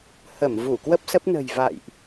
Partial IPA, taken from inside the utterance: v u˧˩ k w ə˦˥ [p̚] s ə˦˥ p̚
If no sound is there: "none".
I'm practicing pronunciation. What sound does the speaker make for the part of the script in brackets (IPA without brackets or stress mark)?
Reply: p̚